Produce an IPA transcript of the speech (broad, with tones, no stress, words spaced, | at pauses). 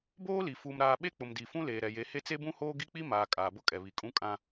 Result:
boː˦li˨ fuː˨mɾaː˨ ɓe˦k͡pʊ˨mdi˨ fũ˦leː˨ ɾɛ˨je˨˦he˦ t͡se˦bũ˦hoː˦ ɡi˦k͡pi˦maː˨ kʼaː˨bʊ˦kʼɛ˨βi˨ kʼũ˦kʼã˦